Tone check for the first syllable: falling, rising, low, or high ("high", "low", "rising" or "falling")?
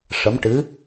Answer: rising